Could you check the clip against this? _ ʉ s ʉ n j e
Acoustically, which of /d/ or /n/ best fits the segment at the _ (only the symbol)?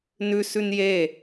n